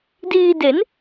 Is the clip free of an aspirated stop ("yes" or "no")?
yes